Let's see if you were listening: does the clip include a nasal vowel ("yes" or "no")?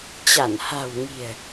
no